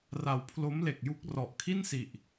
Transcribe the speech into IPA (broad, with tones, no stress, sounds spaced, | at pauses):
r a˨˩ w pʰ l o˦˥ m l e˨˩ k̚ j u˦˥ k̚ r ɔ˨˩ ʔ kʰ i˥˩ n s i˨˩ ʔ